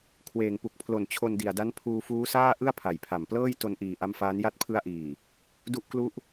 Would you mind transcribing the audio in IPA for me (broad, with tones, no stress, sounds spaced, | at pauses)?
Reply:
kʰ w eː˨˩ ŋ p u˨˩ k̚ pʰ l o˨˩ n t͡ɕʰ o˧ n d i˨˩ a̯ d a˦˥ n pʰ uː˧ f uː˦˥ s aː˥˩ ʔ ɯ˥˩ a̯ pʰ a˨˩ j pʰ a˨˩ m p l ɤː˥˩ j t o˧ n ʔ iː˨˩ ʔ a˦˥ m f aː˦˥ n j a˦˥ t̚ pʰ ɯ˦˥ a̯ ʔ iː˨˩ | d u˦˥ ʔ k l u˦˥ ʔ